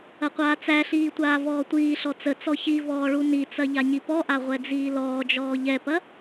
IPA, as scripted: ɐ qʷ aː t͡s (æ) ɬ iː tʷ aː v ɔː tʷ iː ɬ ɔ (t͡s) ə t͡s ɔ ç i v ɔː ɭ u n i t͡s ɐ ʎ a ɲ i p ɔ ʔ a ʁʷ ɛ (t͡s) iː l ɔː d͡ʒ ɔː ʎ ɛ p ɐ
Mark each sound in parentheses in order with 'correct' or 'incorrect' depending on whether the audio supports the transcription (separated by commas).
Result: correct, correct, incorrect